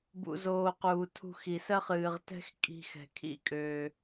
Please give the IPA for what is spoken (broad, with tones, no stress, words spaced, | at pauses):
bṵ˨zoː˨quː˨ tʰṳ˧xi˨sɜ˦χ ɨː˨ʁ tɛ̤˦xkʼi̤˧ xɛ̤˨kʰḭ˦kʼøː˧